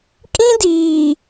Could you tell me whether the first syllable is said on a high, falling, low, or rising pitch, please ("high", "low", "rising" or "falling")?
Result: high